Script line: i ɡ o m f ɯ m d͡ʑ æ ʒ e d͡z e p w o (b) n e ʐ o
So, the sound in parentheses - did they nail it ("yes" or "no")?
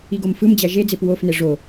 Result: no